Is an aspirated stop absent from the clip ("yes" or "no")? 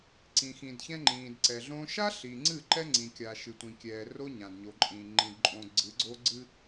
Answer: yes